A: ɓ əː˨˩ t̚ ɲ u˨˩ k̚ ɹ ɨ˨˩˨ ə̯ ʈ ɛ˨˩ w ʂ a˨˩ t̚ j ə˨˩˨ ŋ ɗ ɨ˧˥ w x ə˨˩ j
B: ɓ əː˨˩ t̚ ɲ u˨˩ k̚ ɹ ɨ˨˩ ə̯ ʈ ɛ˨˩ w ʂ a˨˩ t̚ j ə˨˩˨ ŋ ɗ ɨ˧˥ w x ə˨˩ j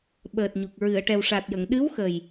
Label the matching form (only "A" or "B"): A